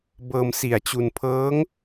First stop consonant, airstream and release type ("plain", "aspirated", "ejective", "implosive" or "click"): plain